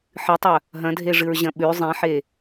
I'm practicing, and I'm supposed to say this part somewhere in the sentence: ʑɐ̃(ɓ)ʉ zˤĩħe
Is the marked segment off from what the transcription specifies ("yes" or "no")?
no